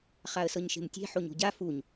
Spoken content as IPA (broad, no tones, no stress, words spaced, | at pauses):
χaə̯sɤɲʃe̤mtʲe̤ ħoɲo̤ɟa fuɲ